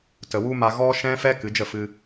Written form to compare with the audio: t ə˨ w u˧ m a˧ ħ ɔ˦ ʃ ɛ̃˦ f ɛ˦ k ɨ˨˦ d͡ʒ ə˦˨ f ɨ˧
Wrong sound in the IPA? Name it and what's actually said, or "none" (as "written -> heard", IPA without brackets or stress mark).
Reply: ħ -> ɣ